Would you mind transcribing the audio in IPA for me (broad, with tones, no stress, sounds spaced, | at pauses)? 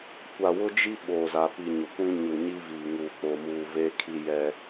kʷ a˨ w ʊ˦ d͡ʒ i˦ ɓ oː˨ z a˨ p i˨ ɲ ʊ˨ kʷ ĩ˦ ɲ u˨ ɲ i˦ v iː˨ ŋ uː˨ k͡p o˨ m uː˨ v e˦ kʰ i˦ j ɛ˦